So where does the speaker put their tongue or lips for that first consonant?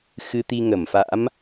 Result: velum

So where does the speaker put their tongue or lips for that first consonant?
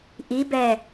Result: throat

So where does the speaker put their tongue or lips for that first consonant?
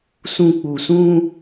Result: tongue tip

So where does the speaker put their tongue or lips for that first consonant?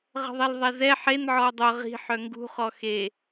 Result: uvula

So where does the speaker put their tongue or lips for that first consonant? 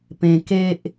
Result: lips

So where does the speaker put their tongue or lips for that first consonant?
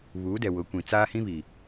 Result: lips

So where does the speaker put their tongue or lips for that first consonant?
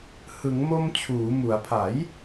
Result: throat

